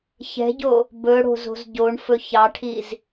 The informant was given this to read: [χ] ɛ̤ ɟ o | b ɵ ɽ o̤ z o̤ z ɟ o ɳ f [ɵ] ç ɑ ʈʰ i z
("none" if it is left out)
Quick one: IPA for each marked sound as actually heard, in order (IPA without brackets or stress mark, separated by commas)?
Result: ç, ɵ